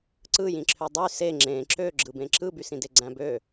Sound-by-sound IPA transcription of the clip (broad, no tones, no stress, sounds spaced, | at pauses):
ǀ ɯ j ĩ ǁʰ ø dˤ y s e ŋ͡ǁ ẽ ǁ ø ɡ͡ǁ ɯ b ẽ ǁ ɯ b y s ĩ d e ɡ͡ǀ æ̃ b ø